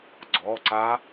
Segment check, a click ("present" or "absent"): present